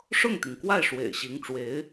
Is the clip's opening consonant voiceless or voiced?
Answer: voiceless